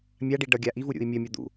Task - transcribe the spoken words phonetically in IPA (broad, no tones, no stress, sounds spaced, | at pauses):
mʲ a ɖ i ɖ ʌ ɡʲ a ʔ i v u ɾʲ ṵ i̯ mʲ ʌ mʲ ʌ d̪ ṵ